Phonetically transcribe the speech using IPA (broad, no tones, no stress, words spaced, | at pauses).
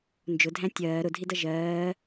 nd͡ʒʊdʱæ̃ tʲɜː ɾʊdʱidʌ ʒɜː